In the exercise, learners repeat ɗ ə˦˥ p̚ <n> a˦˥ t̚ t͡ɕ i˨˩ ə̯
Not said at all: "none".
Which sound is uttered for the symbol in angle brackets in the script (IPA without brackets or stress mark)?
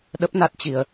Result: n